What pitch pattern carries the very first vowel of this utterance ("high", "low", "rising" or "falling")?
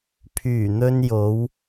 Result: low